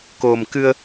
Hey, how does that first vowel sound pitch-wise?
low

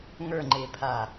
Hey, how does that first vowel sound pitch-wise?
falling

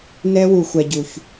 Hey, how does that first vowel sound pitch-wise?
high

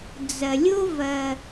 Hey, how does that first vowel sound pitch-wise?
low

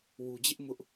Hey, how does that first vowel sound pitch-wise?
low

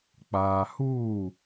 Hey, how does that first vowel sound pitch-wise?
low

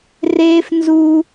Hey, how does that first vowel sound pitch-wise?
high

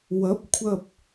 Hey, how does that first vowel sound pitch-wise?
rising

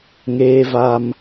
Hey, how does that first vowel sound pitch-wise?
high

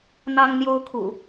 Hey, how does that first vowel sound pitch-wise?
high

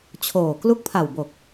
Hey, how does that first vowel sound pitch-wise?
low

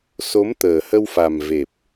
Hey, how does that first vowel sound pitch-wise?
rising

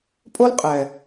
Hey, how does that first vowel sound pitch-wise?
high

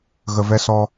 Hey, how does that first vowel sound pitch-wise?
low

